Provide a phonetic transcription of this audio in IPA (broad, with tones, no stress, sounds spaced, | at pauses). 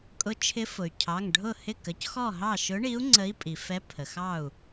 kʼ ʊ˨˥ t͡ʃʰ ɪ˨˥ f ʊ˩ y̯ cʰ ɑ˩˧˩ ŋ ɖʱ ʊ˥˩ h ɪ˥˩ k ə˩˧˩ c x ɔ˥˩ ɦ ɑ˥˩ ʃ ʊ˨˥ ɳ i˨˥ u̯ ŋ͡ǀ ə˨˥ i̯ pʼ i˩ f ɛ˨˥ pʰ ə˩ x ɑ˥˩ u̯